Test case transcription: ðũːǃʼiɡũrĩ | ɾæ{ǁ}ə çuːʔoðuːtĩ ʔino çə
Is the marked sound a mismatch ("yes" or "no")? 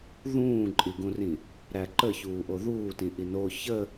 yes